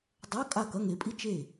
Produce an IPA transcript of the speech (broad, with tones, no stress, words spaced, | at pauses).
dˤo˧˥˧ kʼa˥˩ kɐ˧˥˧ŋe˨˦pʼi˥ t͡ʃe˥˩